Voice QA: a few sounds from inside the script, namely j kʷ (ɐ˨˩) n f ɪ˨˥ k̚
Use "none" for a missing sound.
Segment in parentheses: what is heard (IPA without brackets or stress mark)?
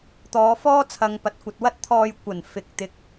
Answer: ɐ˨˩